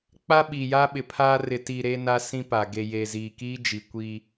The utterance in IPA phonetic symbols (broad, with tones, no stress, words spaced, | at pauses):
k͡pa˦ ɓiː˨jaː˦ɓɪ˨pʰaː˦ rɪ˨ti˨ ɾe˦na˦sĩ˦pa˨ ɡe˨je˨ziː˨kiː˦ d͡ʒi˨kʷi˦